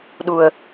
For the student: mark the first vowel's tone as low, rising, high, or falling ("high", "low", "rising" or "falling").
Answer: low